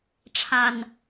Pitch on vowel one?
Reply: low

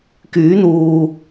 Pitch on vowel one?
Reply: rising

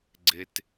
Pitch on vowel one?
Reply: low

